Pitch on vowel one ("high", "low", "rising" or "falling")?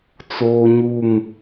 high